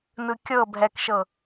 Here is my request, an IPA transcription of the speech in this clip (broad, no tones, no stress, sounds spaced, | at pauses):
n ɯ kʲ ɤ bʱ ɛ k ʃ ɤ